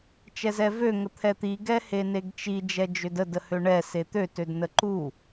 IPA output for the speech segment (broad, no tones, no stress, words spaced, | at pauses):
t͡ʃɛzɛvø ŋət̪ʰɛt̪i ɡɛheneɡt͡ʃi d͡ʒɛd͡ʒødə dəhøɳɛ set̪ø tødnəǃu